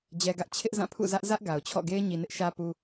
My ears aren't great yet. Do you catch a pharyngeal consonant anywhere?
no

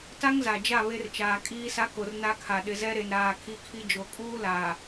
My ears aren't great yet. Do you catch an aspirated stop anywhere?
yes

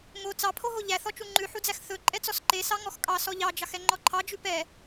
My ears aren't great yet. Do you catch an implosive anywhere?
no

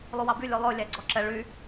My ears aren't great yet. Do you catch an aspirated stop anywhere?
no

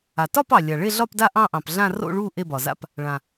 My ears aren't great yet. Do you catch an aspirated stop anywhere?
no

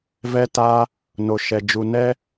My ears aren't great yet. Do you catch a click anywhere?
no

